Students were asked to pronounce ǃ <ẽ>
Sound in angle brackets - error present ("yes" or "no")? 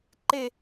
yes